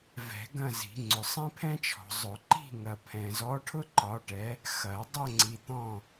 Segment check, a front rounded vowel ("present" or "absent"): absent